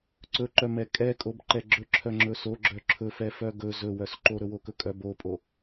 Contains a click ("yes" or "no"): yes